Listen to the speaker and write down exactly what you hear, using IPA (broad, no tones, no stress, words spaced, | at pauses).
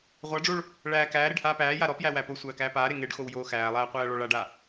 ʁʷaɖ͡ʐoɭ | ɭæː kæːɾeɖ haːpæːja ɾɔpjæ wæposʷæː kæːpaːɾe ŋeɖ xowjoːxæːlˠæː qʷæːɭɔɭaɖa